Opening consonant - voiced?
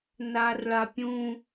yes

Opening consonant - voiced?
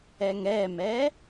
yes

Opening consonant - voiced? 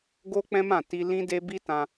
yes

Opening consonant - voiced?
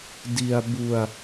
yes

